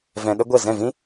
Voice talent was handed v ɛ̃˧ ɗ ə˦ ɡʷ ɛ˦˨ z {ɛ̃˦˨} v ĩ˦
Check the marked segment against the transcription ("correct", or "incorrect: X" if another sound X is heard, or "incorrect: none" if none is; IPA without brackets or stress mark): correct